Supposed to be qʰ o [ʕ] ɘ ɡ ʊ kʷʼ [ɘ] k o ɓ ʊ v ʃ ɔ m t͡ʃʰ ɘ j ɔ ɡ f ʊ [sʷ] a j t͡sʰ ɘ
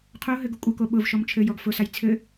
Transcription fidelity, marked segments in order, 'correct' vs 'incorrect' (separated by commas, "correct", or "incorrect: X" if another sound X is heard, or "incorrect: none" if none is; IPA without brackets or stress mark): incorrect: ɦ, correct, incorrect: s